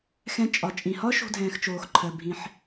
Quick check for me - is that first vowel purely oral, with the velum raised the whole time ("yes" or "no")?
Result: no